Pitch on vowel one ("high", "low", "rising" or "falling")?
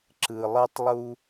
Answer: low